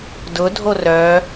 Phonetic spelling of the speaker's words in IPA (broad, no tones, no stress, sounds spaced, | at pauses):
d ʊ dʱ o r œ